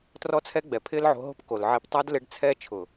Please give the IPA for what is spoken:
t r ɔ˧ t͡sʰ ɛ˧ ɡ͡b ɛ˨ pʰ ɪː˦ l ʕ o̤˧ ɦ o̤˦ p k o˨ l ʕ i˧ p tˤ a˦ d l ɪ˦ ɖ t͡sʰ ɛː˦ t͡ʃʰ ʊ˨

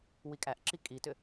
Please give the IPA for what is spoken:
w i kʼ æ ʔ ǁ i kʼ i t ʏ

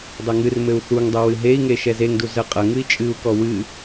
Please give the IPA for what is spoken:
dˤ ɘ ŋ ɨ r m ɘ u̯ θ u ŋ dˤ ɛ w ɨ ɦ e i̯ ŋ e ʃ ɛ z e ŋ d u z ə qʼ ɐ ŋ ɨ i̯ t͡ʃʼ ɨ u̯ k ɔ w ɨ

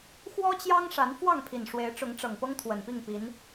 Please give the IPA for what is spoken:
x w ɔ˦ t͡ɕ j ɑ˦ ŋ ʂ a˨˦ n f w ɑ˥˨ ŋ pʰ i˨˩ n ʂ w e˨˦ ɪ̯ ʈ͡ʂ ʊ˨˦ ŋ ʈ͡ʂ ɤ˨˩ ŋ p ɤ˦ ŋ t̪ʰ w ə˨˩ n p i˥˨ ŋ p i˨˦ n

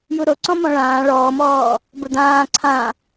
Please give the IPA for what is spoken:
j u ɾ o ǀ ɔ̃ m ɔ̃ ɭ ãː ɭ ɔː m ɔː | b ʊ d̪ ãː ǀʰ ã

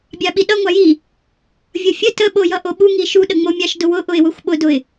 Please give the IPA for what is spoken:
bʲ ɑ ɓ i ɗ ʌ ŋʷ ɑ j i | vʲ ʌ fʲ ə t ə ɓ o j ʌ ʔ o ɓ u ŋ i ʃ u ɗ ə ŋ͡m o mʲ ɑ ʃ d ʊ w ʊ ʔ ʊ ɪ̯ w ʊ xʷ ɓ ʊ d ʊ ɪ̯

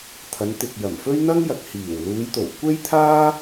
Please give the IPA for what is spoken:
t̪ʰ ɐ˨˧ n t̪ ɪ˨ k̚ j ɐ˨˩ m f ɵ˥ ɥ n̪ ɐ˥ ŋ j ɐ˨ k̚ h iː˨˩ w l uː˨˧ j t̪ o˨˩ w kʷ e˥ j t̪ʰ aː˥

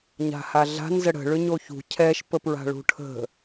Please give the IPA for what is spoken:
ɲ a̤ h a ɮ a̤ n z ə ɽ ə̤ ɭ ʏ ɲ o ç ṳ cʰ ɛ ʃ p ə p ɹ a̤ ɭ ṳ ʈʰ ə̤

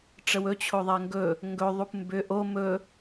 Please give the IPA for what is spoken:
ʈ͡ʂ ə w ɵ t͡ɕʰ o ðˤ ɛ ŋ ɡ ɵ | ŋ ɡ ɵ ðˤ u p m b ʏ ʔ o m ɵ

